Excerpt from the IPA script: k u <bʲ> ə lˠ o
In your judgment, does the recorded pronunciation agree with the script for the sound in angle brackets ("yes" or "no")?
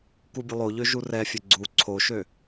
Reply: yes